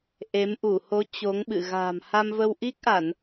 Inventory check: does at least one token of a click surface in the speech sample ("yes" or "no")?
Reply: no